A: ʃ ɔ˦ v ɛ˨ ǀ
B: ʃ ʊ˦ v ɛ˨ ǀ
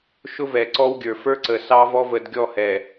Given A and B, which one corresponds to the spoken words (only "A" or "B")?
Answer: B